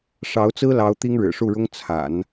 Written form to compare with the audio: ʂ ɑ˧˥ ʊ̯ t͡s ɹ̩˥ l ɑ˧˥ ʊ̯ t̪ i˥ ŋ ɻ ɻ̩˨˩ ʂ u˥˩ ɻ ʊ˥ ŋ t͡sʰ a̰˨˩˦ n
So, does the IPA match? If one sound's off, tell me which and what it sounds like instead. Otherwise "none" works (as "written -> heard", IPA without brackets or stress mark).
none